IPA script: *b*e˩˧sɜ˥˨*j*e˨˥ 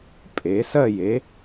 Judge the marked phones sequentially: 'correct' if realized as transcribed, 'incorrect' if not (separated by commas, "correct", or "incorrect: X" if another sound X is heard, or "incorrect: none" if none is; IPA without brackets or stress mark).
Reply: incorrect: pʼ, correct